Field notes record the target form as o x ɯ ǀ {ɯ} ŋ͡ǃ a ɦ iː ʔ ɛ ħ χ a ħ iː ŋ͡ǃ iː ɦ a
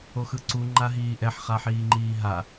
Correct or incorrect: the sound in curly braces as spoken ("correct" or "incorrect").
incorrect